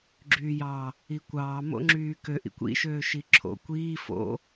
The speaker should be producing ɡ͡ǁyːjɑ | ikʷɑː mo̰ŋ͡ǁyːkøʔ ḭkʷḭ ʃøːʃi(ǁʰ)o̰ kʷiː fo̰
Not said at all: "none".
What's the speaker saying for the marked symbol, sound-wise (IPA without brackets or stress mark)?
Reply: ǁʰ